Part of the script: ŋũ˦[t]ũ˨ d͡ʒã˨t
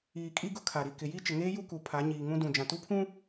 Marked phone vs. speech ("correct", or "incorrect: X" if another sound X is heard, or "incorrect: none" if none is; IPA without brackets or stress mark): incorrect: d